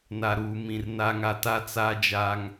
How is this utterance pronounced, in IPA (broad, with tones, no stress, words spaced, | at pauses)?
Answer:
na˨ɾuː˨mĩ˨r na˦ŋa˦ ta˦ t͡saː˦d͡ʒaː˦ŋ